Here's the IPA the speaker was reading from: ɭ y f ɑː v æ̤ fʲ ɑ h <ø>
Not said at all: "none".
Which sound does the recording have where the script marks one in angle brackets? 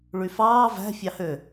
ø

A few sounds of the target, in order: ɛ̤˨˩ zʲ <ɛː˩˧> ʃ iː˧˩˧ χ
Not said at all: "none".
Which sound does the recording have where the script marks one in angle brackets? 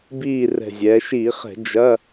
ɛː˩˧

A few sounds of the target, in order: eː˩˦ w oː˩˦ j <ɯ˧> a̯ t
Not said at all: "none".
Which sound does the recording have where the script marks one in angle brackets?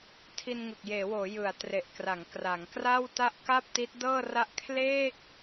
ɯ˨˩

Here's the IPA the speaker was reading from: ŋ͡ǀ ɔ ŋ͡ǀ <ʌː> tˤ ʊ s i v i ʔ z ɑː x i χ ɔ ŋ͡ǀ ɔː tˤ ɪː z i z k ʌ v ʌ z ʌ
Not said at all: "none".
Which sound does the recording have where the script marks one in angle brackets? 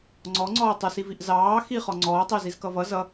ɔː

